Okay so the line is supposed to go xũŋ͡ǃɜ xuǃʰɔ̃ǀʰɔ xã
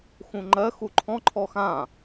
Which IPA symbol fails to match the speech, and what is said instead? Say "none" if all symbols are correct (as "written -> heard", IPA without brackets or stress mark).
ǀʰ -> ǃʰ